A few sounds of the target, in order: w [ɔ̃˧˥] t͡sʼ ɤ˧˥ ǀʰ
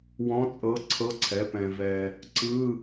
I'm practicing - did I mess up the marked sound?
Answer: no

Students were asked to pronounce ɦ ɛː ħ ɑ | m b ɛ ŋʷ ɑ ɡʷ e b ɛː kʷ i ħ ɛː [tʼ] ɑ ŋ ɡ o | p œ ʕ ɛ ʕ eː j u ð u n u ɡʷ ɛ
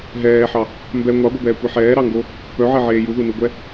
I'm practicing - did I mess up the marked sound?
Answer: yes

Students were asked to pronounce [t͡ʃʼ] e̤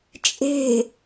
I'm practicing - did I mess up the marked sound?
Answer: no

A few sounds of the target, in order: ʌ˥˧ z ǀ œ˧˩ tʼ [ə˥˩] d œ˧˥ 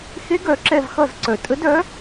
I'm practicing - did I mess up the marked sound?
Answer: yes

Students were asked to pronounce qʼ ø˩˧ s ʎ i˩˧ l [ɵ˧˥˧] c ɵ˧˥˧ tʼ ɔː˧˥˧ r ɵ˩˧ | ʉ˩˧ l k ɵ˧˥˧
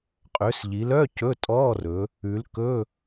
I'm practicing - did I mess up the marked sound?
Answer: yes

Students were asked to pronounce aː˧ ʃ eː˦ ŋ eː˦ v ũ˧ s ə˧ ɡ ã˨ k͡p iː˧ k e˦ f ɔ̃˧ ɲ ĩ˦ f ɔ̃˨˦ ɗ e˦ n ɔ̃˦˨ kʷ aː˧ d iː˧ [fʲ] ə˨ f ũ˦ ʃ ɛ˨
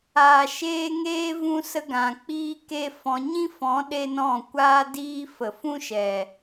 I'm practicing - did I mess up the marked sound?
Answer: yes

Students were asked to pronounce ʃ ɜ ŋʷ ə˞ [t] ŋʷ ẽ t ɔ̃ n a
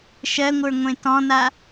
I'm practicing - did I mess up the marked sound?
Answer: yes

